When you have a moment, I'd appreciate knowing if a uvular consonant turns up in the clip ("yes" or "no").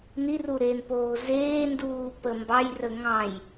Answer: no